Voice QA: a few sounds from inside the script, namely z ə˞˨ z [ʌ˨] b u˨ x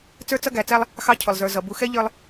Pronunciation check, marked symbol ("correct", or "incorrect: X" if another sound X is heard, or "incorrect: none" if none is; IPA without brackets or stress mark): correct